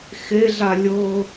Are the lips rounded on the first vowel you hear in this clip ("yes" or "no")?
no